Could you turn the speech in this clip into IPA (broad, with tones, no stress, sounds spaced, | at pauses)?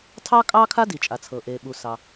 tʰ ɑ˥ kʼ ɑː˥ kʰ a˥ d i˩ t͡ʃʼ a˩ t͡sʰ ɤ˩ ʔ eː˩ ɓ u˩ s ɑ˩